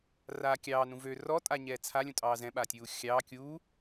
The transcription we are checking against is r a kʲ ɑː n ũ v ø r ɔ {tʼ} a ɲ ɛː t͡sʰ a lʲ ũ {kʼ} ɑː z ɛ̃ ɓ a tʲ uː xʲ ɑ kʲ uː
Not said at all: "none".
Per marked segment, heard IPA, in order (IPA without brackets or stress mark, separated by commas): tʼ, tʼ